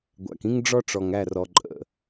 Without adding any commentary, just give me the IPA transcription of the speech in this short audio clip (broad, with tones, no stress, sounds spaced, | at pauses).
ɡʷ æ̰˨ k ĩ˦ ŋ ɖ͡ʐ ɔ˦ ʈ͡ʂ ɔ˨ ŋ æ˦˨ r ɔ˨ ǃʼ ə̰˨